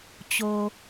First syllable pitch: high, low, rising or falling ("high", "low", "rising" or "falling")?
low